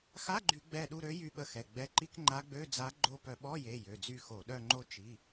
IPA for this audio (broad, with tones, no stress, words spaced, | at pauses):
xa˧˥˧ɡ͡ǃy˧˩˧ ɡ͡bɛ˦˨ ɗu˦˨ɾø˧˥ jy˦˨ɓə˦˨xɛ˩˧˩ ɡ͡bɛ˩˧˩ǃi˧˥˧k ŋ͡ǃa˧˥ɡ͡bø˧˥˧d͡za˧˥ ɡ͡ǃo˦˨pœ˧˩˧ ɓɔ˧˥˧je˩˧˩ jø˩˧˩d͡zy˦˨xo˧˩˧ ɗœ˦˨ŋ͡ǃo˦˨ t͡ʃi˩˧˩